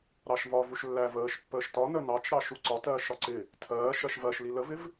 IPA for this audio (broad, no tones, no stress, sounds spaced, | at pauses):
ɾ ɑ ʃ v ɒ v u ʃ lː æ v əː ʃ pː əː ʃ t ɒ n ə n ɑ t͡ʃ ɾ ɑ ʃ u ǀ ɒ t ɜː ʃ ɒ ǀ ɪ | tʰ ɜː ʃ ɜ ʃ v ɜ ʃ l i l ə v ɪ v